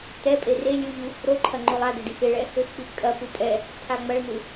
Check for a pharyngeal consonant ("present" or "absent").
absent